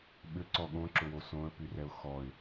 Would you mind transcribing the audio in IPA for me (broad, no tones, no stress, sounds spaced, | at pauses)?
ɓ ʏ ǀ ɔ ɠ õ ǁ ʊ w o s õ ə̯ p y r ɛ ʊ̯ x ɔ ɪ̯